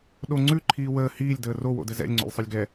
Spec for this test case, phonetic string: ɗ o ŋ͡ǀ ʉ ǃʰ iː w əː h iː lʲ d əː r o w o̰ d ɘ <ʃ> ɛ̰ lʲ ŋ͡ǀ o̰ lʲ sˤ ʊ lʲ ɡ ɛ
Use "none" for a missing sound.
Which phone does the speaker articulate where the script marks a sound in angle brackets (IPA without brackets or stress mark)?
z